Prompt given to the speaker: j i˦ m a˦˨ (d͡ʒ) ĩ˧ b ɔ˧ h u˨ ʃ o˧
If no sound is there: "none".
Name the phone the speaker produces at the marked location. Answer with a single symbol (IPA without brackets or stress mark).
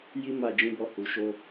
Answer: d͡ʒ